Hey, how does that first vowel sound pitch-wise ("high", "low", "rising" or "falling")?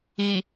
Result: low